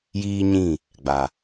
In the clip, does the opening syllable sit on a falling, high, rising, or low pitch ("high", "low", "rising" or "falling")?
high